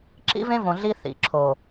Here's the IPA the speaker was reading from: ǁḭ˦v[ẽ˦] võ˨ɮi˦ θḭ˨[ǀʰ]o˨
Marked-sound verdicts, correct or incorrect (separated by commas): correct, incorrect